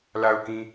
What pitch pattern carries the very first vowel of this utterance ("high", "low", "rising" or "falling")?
low